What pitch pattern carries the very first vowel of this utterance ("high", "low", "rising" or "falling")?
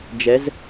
rising